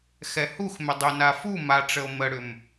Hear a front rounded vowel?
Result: yes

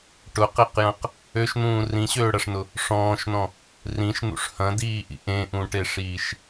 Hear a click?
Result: no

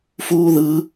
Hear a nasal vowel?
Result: no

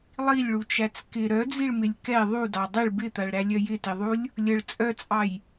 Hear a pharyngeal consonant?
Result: no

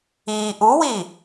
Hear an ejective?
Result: no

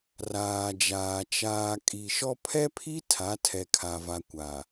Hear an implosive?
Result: no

